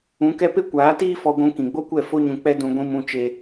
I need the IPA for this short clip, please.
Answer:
ũ˨˦kɛ˦ pe˦kʷaː˨˦tiː˦ fɔ˧ɡʷũ˧ kĩ˨ɡ͡bo˦kʷɛ˦˨ fo˦ɲũ˧ k͡pɛ˦dũ˧ ɡʷĩ˦mũ˦t͡ʃe˦

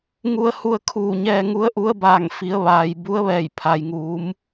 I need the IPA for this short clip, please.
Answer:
ŋu˧ə̯hu˧ə̯ kʰuː˧˩ɲɛː˧ŋu˧˥ə̯ ʔu˧˥ə̯baː˧˩ŋ fi˩˧ə̯ ʋaː˩j bu˧˥ə̯ʋɛː˧˩jpʰa˩j ŋuː˩˧m

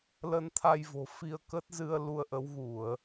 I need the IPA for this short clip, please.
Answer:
lə˧nt̪ʰa˧jvo̤˨˩ fi˧ə̯kə˦˥t̚zɨ˧ə̯ lu˧ə̯ʔə˨˦wɣu˧˩˨ə̯

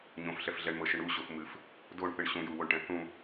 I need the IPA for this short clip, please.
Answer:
ɲõfɬɛf ɮɛɳmɤʃɨɳ uɕof mɨf | doɳθɨɳ ɕũjuwoɳʈɛ̃ θũ

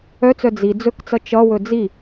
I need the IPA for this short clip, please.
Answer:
œt͡sœ d͡zi d͡zɵkt͡sʌ t͡ʃʌwɵ d͡zi

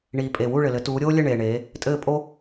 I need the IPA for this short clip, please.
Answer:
ɳiː˨ pʼe˨wu˥˨ ɭɘ˨lɘ˨˦ tuː˨˦ɾʲoː˥lʲɘ˥˨ ɳeː˨ɳeː˨˦ | tʼɘː˥˨pʼo˥

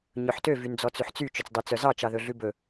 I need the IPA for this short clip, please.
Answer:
ɲɵħtø vynd͡zɔt͡sʉħt͡sy t͡ʃɵt͡sdˤyt͡sœzɑ t͡ʃɑðɵɮʉbɵ

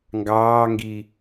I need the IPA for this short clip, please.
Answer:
ŋɡɑːŋɡi

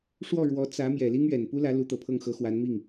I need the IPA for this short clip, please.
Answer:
ʂwɔ˥˩ɻwɔ˧˥ t͡sä˧˥ mjɛ˨˩li˥ŋ ɥɛ˨˩n pu˥lä˧˥ lu˧˥t̪ɤ˨˩pʰɤ˥˩ŋxɤ˧˥ xwa˧˥nmi˥˩ŋ

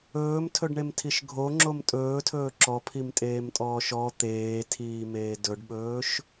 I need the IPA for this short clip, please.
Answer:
ɵːmtʰɵɖɳemtʰiʃ ɡʱoŋ͡ǁom tʼɵːtʰɵː ǁɔpʰimtʼeːmtʼɔːʃ ɔ t̪eːtʰiːmeː dɵɖɓɵːʃ

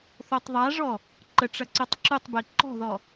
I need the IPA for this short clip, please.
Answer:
θotˤðˤaʐɔ | ǃə ʈ͡ʂɐǀutˤǁutˤbe ǃɔ̤ðɔ

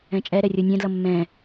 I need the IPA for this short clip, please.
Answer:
ɛ̃t͡ʃʼɛɾɛ rʲonʲɛ̃dlʌ mːɛ̃

